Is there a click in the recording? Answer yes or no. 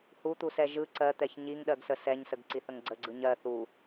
yes